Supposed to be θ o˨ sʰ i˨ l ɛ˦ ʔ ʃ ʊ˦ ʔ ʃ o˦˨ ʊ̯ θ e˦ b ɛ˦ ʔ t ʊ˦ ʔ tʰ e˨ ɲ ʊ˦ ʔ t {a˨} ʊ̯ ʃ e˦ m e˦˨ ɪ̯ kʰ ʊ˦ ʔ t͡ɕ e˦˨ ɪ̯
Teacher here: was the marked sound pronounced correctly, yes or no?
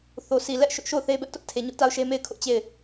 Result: no